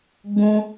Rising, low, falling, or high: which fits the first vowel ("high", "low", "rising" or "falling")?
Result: high